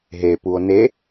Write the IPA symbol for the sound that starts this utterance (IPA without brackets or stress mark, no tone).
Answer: ɦ